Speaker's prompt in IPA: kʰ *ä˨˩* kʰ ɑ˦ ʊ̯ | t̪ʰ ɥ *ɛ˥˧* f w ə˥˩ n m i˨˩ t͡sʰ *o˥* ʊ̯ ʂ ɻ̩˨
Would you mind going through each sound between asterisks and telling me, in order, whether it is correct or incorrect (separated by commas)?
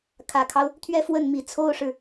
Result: correct, correct, correct